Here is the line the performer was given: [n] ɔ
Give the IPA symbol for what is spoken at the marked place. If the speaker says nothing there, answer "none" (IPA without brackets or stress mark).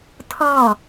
tʰ